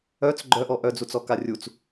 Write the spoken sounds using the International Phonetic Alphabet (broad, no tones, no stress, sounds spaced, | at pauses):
œ t͡s ɡ͡ǃ œ ʔ ɔ ʔ œ d͡z u t͡s ɔ k a rʲ u t͡s